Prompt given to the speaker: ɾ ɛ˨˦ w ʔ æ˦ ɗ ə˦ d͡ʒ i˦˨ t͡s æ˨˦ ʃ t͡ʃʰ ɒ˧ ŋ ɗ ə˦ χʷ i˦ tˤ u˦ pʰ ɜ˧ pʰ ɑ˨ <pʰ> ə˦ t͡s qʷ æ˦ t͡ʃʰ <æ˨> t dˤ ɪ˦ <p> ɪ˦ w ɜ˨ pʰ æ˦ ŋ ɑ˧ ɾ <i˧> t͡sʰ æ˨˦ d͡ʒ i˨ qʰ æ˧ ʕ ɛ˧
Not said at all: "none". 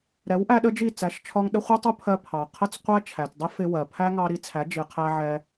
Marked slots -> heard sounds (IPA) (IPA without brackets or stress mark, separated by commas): qʰ, æ˨, f, i˧